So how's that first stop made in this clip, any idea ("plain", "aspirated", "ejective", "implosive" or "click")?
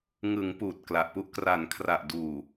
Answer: plain